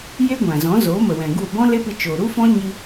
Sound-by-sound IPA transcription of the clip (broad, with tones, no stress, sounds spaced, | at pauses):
j e˦ ɡʷ ã˨ z ɔ̃˨˦ z oː˨˦ m ə˨ w ɛ̃˨ ɡ u˦˨ b ɔ̃˦ l e˦ p ɨ˧ t͡ʃ oː˨ ɾ u˦ f ɔ̃˦ ɲ i˧